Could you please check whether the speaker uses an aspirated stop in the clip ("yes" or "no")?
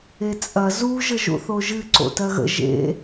no